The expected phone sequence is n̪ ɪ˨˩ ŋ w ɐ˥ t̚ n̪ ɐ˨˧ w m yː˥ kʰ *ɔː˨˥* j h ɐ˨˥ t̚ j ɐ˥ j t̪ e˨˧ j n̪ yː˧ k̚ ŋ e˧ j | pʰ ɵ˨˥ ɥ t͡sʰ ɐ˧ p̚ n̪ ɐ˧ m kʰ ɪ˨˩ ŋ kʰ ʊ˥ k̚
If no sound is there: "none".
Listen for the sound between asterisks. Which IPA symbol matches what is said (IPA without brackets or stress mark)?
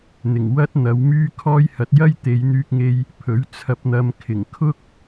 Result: ɔː˥